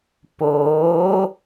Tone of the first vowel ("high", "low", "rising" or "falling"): rising